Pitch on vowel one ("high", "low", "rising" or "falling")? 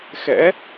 rising